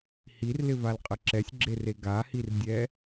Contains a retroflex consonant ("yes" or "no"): no